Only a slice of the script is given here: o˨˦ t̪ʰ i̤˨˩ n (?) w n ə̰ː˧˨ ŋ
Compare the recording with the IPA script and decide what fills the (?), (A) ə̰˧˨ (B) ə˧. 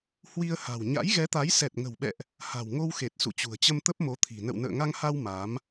A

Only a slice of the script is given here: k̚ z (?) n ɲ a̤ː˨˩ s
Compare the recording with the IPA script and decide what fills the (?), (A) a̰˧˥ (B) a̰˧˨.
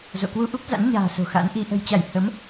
A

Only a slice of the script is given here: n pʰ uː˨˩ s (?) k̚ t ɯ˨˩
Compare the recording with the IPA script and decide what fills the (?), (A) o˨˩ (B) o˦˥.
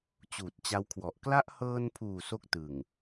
B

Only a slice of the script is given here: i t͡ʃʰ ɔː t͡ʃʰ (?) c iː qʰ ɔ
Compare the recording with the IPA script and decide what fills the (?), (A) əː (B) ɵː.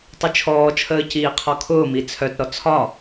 A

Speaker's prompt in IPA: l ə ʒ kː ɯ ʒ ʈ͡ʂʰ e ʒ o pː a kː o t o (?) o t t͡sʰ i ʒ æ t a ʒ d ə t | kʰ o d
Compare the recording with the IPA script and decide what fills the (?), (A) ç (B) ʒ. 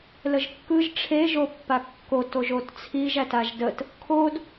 B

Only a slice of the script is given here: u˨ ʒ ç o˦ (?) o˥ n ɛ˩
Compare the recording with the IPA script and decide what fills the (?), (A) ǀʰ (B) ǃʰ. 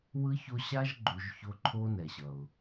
B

